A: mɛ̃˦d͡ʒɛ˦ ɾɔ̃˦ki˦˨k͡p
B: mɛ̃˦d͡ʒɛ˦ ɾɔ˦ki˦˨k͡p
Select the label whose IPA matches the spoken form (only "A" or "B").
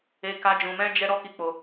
B